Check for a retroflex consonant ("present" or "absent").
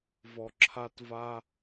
absent